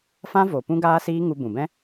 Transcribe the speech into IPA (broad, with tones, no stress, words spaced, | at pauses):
fã˦ vo˨ pũ˦ɡaː˦siː˦ ŋu˧bũ˨bɛ̃˦